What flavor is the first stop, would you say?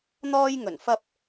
plain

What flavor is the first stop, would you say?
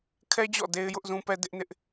aspirated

